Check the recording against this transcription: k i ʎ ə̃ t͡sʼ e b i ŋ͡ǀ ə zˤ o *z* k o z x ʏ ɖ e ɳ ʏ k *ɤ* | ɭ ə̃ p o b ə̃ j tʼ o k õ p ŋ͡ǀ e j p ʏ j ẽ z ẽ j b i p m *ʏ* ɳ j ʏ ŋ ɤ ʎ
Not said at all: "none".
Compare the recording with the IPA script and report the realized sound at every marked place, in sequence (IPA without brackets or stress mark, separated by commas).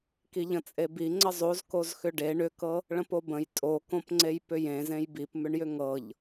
z, ɤ, ʏ